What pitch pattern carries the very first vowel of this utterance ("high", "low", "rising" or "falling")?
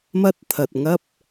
high